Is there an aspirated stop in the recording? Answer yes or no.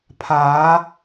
yes